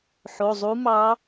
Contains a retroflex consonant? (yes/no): no